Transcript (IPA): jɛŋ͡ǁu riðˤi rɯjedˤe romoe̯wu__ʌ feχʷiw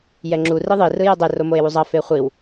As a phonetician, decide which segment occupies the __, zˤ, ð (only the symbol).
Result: zˤ